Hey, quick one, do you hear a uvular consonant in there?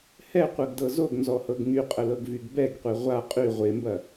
yes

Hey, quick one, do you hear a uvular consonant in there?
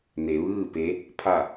no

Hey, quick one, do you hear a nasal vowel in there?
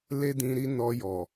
yes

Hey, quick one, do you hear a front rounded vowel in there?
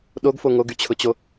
yes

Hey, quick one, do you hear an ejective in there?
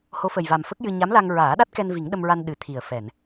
no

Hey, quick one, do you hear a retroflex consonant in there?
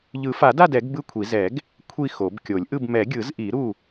no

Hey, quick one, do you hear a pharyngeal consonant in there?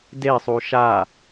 no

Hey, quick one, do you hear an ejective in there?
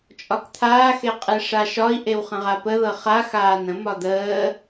yes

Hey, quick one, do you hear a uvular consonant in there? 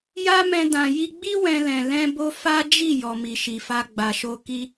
no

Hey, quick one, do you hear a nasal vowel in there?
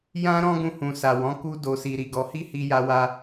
yes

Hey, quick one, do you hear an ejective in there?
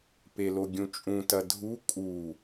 yes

